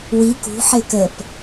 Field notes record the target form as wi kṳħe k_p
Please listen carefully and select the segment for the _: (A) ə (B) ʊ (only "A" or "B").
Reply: A